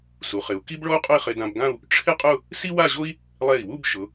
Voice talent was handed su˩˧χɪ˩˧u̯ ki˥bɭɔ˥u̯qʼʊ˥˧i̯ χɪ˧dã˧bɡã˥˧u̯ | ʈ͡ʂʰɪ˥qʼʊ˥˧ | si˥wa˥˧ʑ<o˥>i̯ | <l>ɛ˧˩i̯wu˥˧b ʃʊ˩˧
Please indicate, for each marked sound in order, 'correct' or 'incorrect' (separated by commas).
correct, incorrect